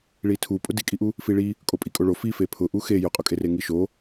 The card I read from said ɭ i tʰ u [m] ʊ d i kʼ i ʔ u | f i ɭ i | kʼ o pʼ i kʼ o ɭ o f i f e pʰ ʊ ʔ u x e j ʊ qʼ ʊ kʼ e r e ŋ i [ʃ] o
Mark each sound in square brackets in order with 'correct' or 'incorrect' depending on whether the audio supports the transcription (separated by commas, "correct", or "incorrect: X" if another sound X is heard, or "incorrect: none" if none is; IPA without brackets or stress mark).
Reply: incorrect: pʼ, correct